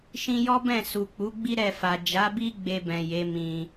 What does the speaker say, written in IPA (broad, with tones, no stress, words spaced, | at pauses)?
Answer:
ʃĩ˧ jɔ˦bɛ̃˦˨ su˨k͡pu˨˦ɡ͡bi˦ ɾɛ˦˨fa˨ d͡ʒa˨˦bi˦ ɡ͡be˧bɛ̃˨ je˨˦mĩ˧